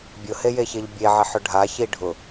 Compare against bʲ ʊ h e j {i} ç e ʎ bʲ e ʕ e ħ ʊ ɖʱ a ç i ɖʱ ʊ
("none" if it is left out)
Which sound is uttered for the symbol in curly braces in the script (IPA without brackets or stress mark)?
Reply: e